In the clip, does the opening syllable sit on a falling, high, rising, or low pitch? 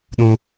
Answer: high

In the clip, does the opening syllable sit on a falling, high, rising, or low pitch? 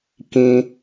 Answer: high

